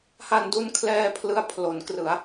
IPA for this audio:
ha˧ndu˦˥nkʰlɛː˧ pʰlɯ˦˥a̯ pʰlo˩˦nkrɯ˩˦a̯

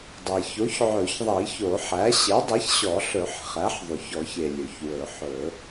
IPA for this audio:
dˤɛ˩ço˩˥ç ʕɵ˨˩˦çðˤi˨˩˦ço˨˩˦ħæ˩˥ ɕe˩˥dˤɛ˩˥çɕɔ˨˩˦ ɬɵ˨˩˦ħ χæ˩˥ħðˤʉ˩çɔ˨˩˦ç e˩ lʲɵ˩çwɵ˨˩˦ħɵ˨˩˦

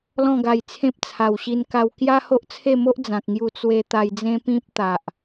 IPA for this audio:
lɔ̃˥˧ɡa˧jt͡sʰẽ˦p̚ t͡sʰa˨˩wɕi˧nka˧w kja˦ho˦ʔt͡sʰe˥˧mo˦ʔ d͡zã˨k̚ŋju˧ t͡swe˧ t̪a˧jd͡zẽ˦ pĩ˦p̚t̪a˨ʔ

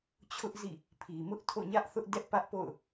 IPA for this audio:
t͡ɕʰʊ˦ʔzḭ˦˨ | pʰi˨ mʊ˦ʔtʰo̰˦˨ɲä˦ʔθʊ˦ʔ dɛ˦ʔpä˦ʔpo̰˦˨ʊ̯

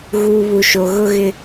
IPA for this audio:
ɣuː˨βu˨ʃo˨ ɣʊ˦ɣɪ˦

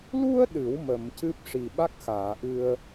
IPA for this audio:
lu˧ə̯ ɗɨ˨˩˦w mə˨˩˨mcɨ˦˥p̚ ʂi˨˩ɓa˦˥k̚xaː˨˩˨ʔɨ˧ə̯

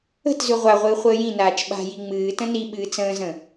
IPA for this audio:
ə̤tzʉ ʁʷaʁʷɨː χʷəːjĩnaːt͡ʃ ɓa̤ji ŋ͡mɨː tə̃niɓɨː t͡sə̃ːzə̃

